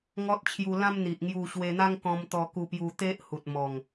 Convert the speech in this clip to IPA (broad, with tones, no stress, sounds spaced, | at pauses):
ŋ ɔ˦ t̚ t͡ɕʰ j u˧ l ã˦ m n̪ i˨ ʔ ŋ j u˧ ɕ w e˧ n̪ a˦ ŋ k ɔ̃˧ m t̪ ɔ˧ k u˧ p j u˧ t̪ e˦ ʔ h u˨ t̚ m ɔ˨˩ ŋ